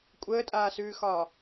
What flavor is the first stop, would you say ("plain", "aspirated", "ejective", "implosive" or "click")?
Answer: ejective